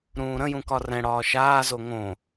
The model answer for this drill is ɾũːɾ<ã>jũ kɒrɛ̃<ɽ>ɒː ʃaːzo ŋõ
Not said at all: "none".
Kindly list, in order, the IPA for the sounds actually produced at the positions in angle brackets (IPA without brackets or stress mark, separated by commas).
ə̃, ɽ